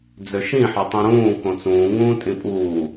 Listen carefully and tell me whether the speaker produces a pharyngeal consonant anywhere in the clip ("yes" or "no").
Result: yes